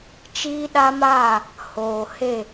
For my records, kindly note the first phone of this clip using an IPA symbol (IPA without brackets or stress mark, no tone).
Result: t͡ʃ